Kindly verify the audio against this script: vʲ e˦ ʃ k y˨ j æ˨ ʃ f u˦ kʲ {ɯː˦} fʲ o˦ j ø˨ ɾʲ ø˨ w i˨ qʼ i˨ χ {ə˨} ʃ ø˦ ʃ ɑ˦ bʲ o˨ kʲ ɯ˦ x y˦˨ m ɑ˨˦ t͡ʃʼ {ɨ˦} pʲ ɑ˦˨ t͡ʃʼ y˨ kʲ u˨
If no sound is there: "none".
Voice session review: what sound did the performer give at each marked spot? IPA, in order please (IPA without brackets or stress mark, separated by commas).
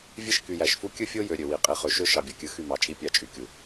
ɯ˦, ø˨, i˦